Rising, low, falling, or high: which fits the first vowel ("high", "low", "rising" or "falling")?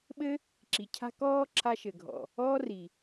high